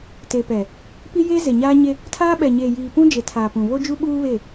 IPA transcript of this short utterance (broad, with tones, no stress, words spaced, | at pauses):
te˨pɛ˨ | pi˦jeː˦ze˨ɲaː˦ ɲe˦ | tʰaː˦ ɓɛ˨ɲeː˨ jiː˨pũ˦d͡ʒe˨ tʰaː˨pũ˨ βo˦d͡ʒu˦ ɓuː˦βe˦˨